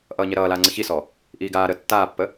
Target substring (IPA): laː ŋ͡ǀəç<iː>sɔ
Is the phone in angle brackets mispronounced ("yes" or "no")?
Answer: yes